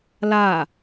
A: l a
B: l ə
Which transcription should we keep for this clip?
A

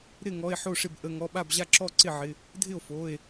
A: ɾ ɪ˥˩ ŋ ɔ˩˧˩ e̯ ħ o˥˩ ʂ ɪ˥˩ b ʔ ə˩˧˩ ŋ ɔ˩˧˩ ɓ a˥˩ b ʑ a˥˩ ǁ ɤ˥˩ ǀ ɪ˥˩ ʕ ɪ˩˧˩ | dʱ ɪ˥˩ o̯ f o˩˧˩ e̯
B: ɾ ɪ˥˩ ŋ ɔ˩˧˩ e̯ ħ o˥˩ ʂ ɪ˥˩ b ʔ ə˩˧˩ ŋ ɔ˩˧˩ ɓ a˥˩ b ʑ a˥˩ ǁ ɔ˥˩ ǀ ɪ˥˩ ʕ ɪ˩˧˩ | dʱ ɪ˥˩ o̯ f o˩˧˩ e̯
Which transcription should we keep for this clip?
B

